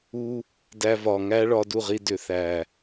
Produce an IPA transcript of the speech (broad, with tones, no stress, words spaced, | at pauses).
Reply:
u˧ | dæ˧vɒ˨ŋæ˦ ɭɒ˧du˦˨ʁi˧ dʏ˨θæ˨